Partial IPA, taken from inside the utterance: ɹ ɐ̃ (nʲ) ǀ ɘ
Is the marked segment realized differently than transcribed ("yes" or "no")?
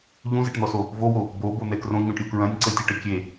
no